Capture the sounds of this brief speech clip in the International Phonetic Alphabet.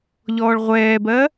ʎɔːɭʁʷɛːbɜ

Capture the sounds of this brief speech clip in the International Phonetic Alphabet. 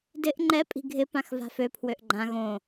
dɪʔ ŋ͡ǃɛ pʼi̤ɡʱɪ pãxva̤fø pʰwøʔɡ͡ǃã ɣõ

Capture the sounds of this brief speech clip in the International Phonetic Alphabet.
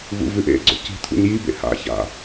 vṵvʉʔḛɡ͡ǀo̰ ci̤t̪ʰṵɲ jibḛ ha̰ça̰

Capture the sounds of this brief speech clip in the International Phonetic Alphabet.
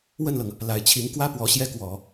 wə˥˩nlɤ˩ŋ | la˨˩ɪ̯t͡ɕʰi˧˥ŋ kwä˥ pwɔ˧˥ɕjɛ˥kwɔ˨˩˦

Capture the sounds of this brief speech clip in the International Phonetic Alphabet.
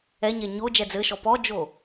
ɛɲɛ ɲo d͡ʒɛd͡zɘʃɔ pɔd͡ʒo

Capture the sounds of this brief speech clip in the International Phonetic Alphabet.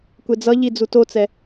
kʷed͡zʌʎi d͡zutot͡sɛ

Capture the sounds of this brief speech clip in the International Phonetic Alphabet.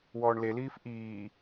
wɔːɳleliːf ʔiː

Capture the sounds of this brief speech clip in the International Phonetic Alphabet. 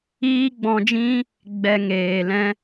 iː˦ɡ͡bɔ̃˧d͡ʒĩ˦ | ɡ͡bɛ˧ŋeː˨lɛ̃˦

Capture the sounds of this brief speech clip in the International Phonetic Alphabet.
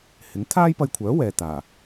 hɪ˨˥ŋ t̪ʰaː˥jpɐ˧jkʷʰœː˨˥wɛː˨ t̪aː˨˩

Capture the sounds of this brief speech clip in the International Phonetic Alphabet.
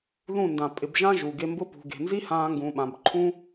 ðũ˦˨ndã˨ pʼɪ˨bʒã˦ ʒu˨ɡe˧mbʊ˦ pṳ˨ɡe̤˨nzi˦hãː˧ ŋɡũː˨ɓã˨bǃʰũː˦

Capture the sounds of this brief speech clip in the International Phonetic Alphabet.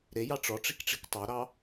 ɾejɑ ʈ͡ʂɔʈ͡ʂikʈ͡ʂik tˤɑɾɑ

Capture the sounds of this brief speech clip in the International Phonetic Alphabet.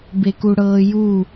bekuɽɤːju

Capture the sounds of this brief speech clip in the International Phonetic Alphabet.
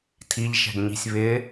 tʰiʎʃɛ̤ɡɲi̤sʲ βɪ

